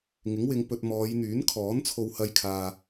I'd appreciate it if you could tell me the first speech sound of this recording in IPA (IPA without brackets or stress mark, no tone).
ŋ